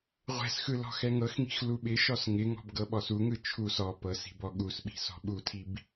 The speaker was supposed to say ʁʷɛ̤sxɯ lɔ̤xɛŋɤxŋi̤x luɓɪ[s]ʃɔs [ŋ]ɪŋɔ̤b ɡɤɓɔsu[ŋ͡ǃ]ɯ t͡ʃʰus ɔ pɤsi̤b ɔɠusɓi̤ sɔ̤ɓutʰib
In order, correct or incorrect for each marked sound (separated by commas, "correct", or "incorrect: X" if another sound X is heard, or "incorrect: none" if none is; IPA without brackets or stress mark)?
incorrect: none, correct, incorrect: ŋ